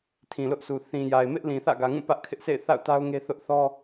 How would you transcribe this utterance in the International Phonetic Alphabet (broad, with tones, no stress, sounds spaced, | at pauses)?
tʰ ĩ˨ l ʊ˦ ʔ sʰ u˨ θ ĩ˨ j a˨ ɪ̯ m ɪ˦ ʔ l ĩ˨ θ ä̰˦˨ ɡ ä˨ ŋ ũ˦˨ p ä˦ ʔ kʰ ɪ˦ ʔ sʰ ḛ˦˨ ɪ̯ θ a̰˦˨ ʊ̯ t a˦ ʊ̯ ŋ e˦ θ ʊ˦ ʔ θ ɔ˦